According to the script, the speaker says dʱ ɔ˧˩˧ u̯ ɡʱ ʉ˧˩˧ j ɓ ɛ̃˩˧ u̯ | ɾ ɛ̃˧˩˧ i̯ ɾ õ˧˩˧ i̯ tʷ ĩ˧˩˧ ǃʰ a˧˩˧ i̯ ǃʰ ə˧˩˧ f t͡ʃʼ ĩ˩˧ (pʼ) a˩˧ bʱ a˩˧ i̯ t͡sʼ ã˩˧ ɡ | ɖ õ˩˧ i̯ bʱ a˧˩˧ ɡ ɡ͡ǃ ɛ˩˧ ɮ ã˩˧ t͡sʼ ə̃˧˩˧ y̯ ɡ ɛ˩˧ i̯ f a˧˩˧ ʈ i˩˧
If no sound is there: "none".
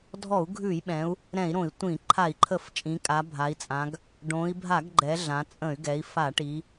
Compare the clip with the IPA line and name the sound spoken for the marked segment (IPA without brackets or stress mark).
kʼ